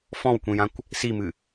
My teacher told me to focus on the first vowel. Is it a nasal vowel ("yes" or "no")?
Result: yes